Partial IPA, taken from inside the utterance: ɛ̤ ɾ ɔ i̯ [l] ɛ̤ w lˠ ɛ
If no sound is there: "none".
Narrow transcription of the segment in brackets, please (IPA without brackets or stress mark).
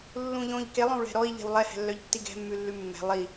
ʎ